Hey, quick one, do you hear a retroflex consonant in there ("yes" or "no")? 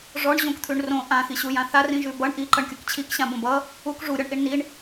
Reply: yes